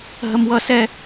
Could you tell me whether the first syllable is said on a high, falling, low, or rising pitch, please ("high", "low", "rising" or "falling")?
high